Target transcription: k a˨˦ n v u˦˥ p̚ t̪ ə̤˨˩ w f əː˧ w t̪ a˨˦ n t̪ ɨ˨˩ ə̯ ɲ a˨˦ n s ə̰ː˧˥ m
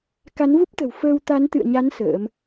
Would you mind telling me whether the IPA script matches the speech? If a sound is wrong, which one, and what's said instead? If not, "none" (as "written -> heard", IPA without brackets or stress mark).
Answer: ɨ˨˩ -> ɨ̰˧˨